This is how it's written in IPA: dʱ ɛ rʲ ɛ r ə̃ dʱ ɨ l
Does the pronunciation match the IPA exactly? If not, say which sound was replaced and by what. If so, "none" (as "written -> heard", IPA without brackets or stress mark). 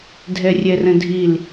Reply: ɨ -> i